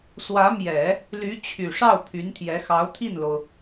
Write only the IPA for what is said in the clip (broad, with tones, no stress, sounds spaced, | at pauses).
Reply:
s w ä˧˥ m j ɛ˨˩˦ | l y˧˥ t͡ɕʰ y˨˩ ʂ ɑ˥˩ ʊ̯ pʰ y˧˥ n t̪ʰ j ɛ˧˥ x ɑ˧˥ ʊ̯ t̪ʰ i˥˩ n l o˩ ʊ̯